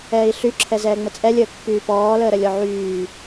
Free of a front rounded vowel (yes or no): no